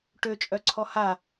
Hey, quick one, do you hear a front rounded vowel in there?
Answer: yes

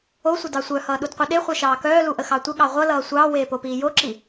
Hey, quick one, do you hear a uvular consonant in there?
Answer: yes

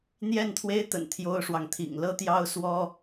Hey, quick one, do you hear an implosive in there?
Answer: no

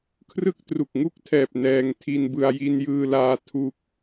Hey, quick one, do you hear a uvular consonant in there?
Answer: no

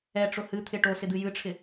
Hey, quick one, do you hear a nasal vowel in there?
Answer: no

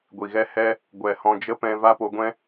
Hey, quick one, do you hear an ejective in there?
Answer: no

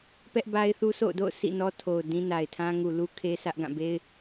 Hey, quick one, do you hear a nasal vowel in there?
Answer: yes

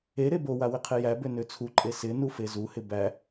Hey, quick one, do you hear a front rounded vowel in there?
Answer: yes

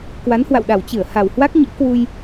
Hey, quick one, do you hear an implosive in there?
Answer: yes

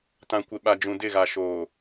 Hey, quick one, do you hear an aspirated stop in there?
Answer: no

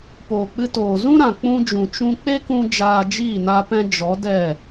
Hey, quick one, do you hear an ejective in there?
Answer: no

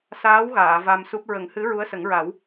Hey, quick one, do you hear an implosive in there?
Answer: no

